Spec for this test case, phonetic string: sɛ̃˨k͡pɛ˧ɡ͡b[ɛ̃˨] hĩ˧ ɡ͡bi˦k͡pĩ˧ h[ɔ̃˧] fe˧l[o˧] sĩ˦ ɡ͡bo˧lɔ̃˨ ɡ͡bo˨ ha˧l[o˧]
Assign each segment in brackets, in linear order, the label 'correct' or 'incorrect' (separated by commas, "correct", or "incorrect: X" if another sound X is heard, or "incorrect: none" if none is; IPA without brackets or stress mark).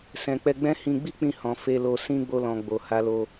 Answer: incorrect: ɛ̃˦, incorrect: ɔ̃˨, correct, correct